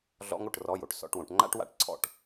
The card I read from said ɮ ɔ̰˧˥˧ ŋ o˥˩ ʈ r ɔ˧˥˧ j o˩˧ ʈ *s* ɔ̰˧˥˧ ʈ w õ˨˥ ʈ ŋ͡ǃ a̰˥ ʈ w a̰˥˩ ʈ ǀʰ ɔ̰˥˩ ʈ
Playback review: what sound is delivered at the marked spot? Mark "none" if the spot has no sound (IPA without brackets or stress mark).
s